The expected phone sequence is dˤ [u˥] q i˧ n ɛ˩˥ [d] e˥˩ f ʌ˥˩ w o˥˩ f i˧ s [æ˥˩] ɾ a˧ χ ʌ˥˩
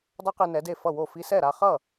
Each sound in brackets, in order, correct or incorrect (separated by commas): incorrect, correct, incorrect